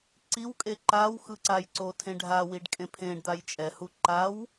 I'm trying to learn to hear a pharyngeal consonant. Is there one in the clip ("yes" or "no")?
no